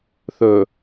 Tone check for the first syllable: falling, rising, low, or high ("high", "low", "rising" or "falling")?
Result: low